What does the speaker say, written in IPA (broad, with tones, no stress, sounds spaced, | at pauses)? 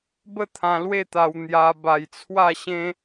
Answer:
b ə˥˧ t̪ʰ ã˧ l w e˥˧ t̪ a˧ w n̪ j a˧ b a˧ j t͡sʰ w a˥˧ ɕ ẽ˦